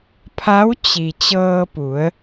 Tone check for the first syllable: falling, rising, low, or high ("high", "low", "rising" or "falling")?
rising